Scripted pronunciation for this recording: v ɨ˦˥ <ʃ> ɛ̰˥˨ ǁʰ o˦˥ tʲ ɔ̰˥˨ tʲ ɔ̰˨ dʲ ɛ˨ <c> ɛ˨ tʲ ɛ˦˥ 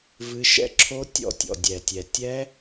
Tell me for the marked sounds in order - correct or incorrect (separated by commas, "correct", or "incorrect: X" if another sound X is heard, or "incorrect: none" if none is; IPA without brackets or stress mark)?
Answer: correct, incorrect: tʲ